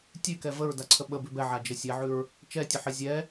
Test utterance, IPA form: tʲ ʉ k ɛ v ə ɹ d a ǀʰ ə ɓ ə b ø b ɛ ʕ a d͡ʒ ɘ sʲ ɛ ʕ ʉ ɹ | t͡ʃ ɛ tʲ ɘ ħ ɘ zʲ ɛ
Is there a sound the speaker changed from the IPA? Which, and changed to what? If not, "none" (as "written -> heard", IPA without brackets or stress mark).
ø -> ʉ